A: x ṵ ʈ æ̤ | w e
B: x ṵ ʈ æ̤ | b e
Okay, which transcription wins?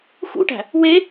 A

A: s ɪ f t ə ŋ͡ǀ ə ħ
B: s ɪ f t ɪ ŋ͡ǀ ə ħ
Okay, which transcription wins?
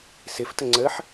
A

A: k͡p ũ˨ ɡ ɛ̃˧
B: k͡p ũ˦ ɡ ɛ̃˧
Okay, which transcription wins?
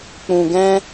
A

